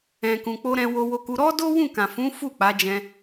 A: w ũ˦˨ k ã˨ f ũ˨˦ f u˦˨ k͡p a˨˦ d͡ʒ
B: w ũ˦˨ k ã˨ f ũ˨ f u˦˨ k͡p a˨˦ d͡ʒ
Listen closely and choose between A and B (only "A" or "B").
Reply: A